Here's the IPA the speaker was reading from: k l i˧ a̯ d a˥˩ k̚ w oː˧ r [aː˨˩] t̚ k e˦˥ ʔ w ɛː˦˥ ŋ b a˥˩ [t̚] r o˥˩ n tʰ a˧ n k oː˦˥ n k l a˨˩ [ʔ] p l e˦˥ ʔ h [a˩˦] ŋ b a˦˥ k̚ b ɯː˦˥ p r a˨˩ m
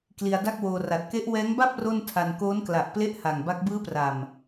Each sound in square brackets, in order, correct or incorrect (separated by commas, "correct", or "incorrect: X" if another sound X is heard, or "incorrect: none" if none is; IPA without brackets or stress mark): incorrect: a˨˩, incorrect: p̚, correct, incorrect: a˨˩